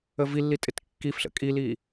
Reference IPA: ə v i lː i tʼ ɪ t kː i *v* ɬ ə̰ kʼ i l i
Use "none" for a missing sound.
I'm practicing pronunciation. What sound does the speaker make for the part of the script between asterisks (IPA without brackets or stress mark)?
f